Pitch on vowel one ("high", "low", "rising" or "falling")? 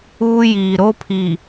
high